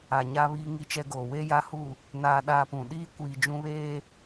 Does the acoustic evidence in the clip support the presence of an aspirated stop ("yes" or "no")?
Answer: no